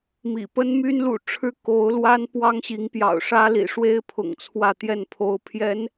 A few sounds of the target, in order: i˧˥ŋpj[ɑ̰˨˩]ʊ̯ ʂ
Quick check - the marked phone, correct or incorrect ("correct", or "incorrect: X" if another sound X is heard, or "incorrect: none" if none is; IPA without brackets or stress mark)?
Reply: correct